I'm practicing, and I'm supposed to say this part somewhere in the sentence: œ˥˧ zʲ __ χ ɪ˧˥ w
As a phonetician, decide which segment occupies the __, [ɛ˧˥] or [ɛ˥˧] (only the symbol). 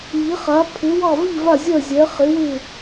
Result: ɛ˧˥